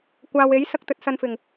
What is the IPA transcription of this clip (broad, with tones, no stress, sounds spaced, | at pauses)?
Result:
kʷ aː˨ w e˨˥ j s ɐ˧ k̚ t̪ ɵ˧ t̚ s ɐ˧ n f ɪ˨˩ ŋ